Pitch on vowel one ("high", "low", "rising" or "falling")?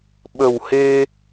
low